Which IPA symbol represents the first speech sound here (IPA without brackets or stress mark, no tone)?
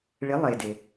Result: ɭ